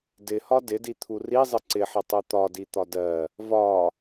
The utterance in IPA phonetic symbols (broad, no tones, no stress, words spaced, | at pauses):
dɪhɒ dɪdit̪ʰu rizˤɪ ǀɪħɪtˤu t̪ɒdit̪ɒ dɜ | vɒ